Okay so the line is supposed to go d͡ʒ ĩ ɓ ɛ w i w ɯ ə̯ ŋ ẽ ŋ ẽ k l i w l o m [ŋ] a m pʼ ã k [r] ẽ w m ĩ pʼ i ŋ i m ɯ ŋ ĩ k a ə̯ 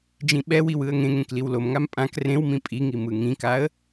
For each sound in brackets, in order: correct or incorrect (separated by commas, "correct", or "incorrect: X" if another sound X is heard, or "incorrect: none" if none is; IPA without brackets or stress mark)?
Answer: correct, correct